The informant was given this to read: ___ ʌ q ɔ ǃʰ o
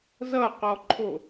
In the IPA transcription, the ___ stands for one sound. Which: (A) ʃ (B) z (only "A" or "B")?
B